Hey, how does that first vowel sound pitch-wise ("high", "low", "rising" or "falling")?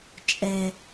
low